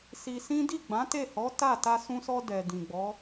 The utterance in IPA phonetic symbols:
si˧sĩ˦ di˦˨ɡ͡bã˨˦te˦˨hɔ˨˦ ta˦˨ ta˧sũ˧sɔ˧ dɛ˨ dĩ˨ɡ͡bɔ˨˦

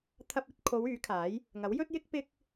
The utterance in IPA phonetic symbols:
t̪ʰɐ˧p̚ɵ˧t̚kʰo˨˧w yː˨˥kʰaː˨˥j | ŋɐ˨˥wjɵ˥t̚jɪ˥k̚ pɪ˥k̚

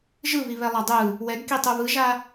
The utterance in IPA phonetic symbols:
ʒɯβiβɛlˠa dˤɯ | wɛɡkitˤu βɯʒa

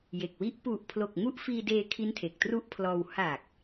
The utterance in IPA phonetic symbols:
je˨˩k̚wi˦˥ʔ pu˨˩ʔpʰlo˨˩k̚ ŋu˦˥ʔfiː˧deː˧ kʰi˦˥ntʰe˨˩k̚tru˦˥ʔpʰlɔː˧w ha˨˩k̚

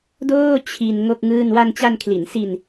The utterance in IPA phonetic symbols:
doː˥˩ t͡ɕʰi˧n ŋo˥˩k̚ŋɯː˥˩n wa˧nt͡ɕa˧nkʰli˩˦nsi˧n

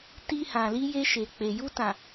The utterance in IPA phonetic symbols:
ti˧hã˨li˧ je˧ʃe˨k͡pe˨ ju˧tã˨

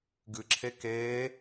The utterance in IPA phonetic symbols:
ɡɨǁʰe keː

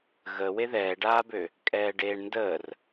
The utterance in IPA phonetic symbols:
ɣə weðɛːɖaːbø | kʼɛːɖeːɳndəːr

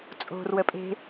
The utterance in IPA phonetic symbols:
t͡sʼo̤r wəpʼe̤

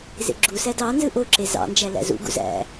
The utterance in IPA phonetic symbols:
zḛɡ͡ǁusæ dɑ nzɯʔoǁe zɑ̰nd͡ʒæ læ̰zṵɡṵ zæ̰

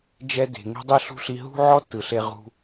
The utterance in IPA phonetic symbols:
d͡ʒɛ˧ de̤˨ ŋe̤˧dˤi˧ɬṳ˧ ɬi˧ ɦṳ˦ʕɔ˦tːɯ˨ ɬe˧ʁṳ˧

